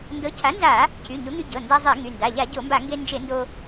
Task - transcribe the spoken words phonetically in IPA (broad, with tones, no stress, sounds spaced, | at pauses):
n d ɤ˩˥ cʰ a˩˥ n z a˧˩˧ | cʰ y˩˧˩ ɲ o˩˥ ŋ y˧ ɟ ɤ˩˧˩ n d a˧ zˤ e˧˩˧ ŋ y˩˧˩ n d a˩˧˩ ʎ a˧˩˧ ɟ o˧˩˧ m b a˧˩˧ ŋ ɡ e˧ n d͡ʒ e˧˩˧ n d o˧